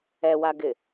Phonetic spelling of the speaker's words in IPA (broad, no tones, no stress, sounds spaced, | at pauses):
ɛ w a ɡ ɪ